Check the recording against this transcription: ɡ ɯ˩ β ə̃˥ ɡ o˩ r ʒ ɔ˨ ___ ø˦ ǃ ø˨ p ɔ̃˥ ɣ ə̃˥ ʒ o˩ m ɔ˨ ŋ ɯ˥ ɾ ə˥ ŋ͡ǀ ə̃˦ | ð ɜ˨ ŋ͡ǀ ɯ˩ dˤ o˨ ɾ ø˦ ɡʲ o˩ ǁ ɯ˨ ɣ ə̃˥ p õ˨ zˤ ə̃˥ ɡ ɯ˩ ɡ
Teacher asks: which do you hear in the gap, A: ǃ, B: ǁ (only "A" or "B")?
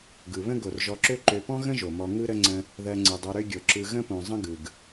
B